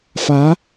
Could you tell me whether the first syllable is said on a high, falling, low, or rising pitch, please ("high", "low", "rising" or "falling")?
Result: rising